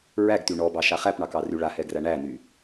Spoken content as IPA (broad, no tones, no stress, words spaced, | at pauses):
ɹæɡty ɳɔbɑʃa χæpɳɑkɑry ɭahɛɡræ ɳæny